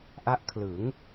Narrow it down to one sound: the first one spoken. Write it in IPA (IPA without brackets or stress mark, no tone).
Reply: ʔ